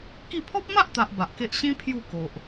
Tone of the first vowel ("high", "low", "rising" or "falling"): falling